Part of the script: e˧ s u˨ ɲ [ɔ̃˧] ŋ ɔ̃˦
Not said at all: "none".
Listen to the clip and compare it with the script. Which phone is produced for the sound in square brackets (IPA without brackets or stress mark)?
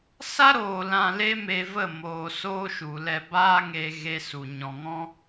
ɔ̃˨